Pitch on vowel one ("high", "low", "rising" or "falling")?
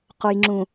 low